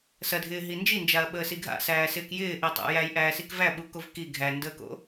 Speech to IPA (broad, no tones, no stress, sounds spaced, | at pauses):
s ɐ dʱ ɪː ɦ i n d͡ʒ i n d͡ʒ a ɐ̯ ɓ əː s i ɡʱ a̰ s æː s ɪː k j ɪː ʔ i tˤ a̰ j æ j ʔ æː s i k v æ ɓ u k o v k i ɡʱ æ n d əː k o̰